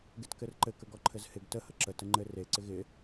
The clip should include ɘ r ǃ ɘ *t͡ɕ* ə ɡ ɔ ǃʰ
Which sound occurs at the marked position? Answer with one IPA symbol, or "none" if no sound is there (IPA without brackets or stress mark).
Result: k